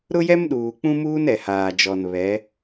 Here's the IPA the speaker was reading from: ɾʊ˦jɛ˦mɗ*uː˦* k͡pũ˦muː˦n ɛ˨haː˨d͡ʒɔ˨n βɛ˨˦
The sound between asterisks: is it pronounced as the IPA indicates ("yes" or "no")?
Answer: no